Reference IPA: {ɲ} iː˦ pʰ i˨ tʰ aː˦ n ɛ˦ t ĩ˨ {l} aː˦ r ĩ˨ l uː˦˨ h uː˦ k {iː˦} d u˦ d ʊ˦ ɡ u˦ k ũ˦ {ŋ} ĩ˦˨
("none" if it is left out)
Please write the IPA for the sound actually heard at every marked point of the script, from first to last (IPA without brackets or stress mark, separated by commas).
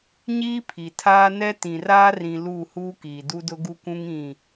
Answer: ɲ, r, iː˨, ŋ